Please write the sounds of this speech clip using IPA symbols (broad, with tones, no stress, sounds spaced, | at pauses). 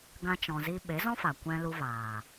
ɡ ã˦ t͡ʃ ɔ̃˧ z i˦ ɓ e˨˦ z ɔ̃˦ f a˨ kʷ ɛ̃˧ l u˧ v aː˨